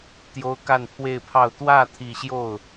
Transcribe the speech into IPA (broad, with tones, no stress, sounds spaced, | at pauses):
t̪ j o˥ ʊ̯ k a˥˧ n pʰ w e˥˧ ɪ̯ pʰ ɑ˥˧ ʊ̯ t̪ w ä˥˧ t̪ʰ i˥˧ ɕ j o˥˩ ʊ̯